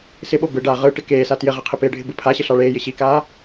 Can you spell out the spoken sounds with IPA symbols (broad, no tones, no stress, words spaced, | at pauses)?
sɪɓo bɯɖaː ʁɯʈɪ keːsa tjɪʁɪ qʰɪpɪːɖʱɪ bɯpʰaɕɪ ɬɑɭeːjɪ ɕikaː